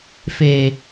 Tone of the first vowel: low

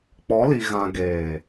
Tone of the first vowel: rising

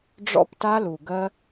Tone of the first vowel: high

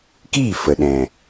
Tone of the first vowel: falling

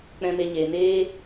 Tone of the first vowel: high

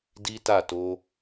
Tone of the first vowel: high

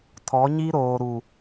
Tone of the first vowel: rising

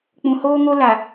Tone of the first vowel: low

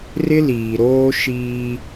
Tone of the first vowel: high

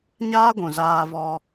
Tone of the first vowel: high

